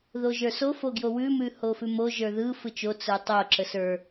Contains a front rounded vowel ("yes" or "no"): no